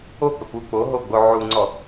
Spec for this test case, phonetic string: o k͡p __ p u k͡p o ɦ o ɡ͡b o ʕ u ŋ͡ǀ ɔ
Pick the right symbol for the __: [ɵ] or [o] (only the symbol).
ɵ